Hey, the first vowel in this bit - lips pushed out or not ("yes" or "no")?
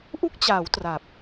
yes